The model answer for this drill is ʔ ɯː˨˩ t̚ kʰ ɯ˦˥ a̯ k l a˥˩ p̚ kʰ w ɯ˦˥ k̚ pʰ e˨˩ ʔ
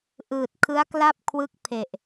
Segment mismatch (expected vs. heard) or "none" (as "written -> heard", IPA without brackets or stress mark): none